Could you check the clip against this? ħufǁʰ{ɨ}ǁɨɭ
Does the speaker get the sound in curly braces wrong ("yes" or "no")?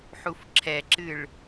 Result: yes